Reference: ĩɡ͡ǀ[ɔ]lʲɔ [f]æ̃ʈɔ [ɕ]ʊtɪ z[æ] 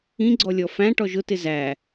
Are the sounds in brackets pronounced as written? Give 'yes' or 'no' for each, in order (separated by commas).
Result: yes, yes, no, yes